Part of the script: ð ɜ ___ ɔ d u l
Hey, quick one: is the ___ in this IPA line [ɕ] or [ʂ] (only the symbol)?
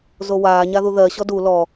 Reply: ɕ